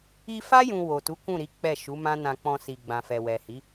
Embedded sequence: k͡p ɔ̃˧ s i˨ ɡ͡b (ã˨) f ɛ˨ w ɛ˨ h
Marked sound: correct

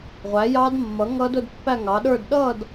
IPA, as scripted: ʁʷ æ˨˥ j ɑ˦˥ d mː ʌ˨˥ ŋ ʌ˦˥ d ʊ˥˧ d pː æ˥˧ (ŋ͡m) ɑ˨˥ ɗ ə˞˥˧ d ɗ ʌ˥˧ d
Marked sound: incorrect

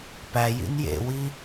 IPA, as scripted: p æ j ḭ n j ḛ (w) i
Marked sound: correct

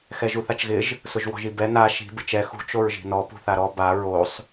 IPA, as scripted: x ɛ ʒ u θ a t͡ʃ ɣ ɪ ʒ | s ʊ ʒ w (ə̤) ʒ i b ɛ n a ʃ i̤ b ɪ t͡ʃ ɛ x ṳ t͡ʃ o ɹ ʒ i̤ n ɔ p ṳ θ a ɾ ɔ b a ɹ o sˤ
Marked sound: incorrect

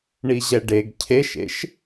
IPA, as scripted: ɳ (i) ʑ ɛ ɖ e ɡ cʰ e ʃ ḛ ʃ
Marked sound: correct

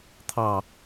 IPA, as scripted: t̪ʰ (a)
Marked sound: incorrect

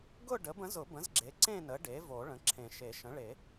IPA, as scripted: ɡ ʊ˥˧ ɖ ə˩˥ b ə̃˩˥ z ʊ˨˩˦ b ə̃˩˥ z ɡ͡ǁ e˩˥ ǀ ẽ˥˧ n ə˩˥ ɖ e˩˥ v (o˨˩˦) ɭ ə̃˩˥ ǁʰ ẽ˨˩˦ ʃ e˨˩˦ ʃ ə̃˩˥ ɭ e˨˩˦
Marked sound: correct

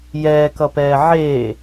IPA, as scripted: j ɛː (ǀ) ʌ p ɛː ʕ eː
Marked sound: incorrect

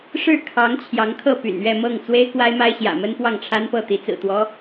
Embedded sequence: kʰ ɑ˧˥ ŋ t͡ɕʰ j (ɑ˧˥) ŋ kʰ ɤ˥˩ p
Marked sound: correct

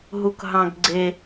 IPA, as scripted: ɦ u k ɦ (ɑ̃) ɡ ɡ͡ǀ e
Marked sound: correct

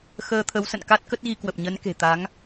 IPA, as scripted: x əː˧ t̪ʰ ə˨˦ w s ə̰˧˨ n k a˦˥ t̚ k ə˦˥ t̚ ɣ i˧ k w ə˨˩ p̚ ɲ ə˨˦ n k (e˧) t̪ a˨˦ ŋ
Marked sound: incorrect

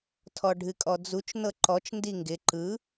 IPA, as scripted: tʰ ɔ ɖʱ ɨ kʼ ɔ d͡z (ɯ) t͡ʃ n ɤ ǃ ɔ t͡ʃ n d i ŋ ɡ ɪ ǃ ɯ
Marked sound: incorrect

